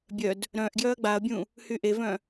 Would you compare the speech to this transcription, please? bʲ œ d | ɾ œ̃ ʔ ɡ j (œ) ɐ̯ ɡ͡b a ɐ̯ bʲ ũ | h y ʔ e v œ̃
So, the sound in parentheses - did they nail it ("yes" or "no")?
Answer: yes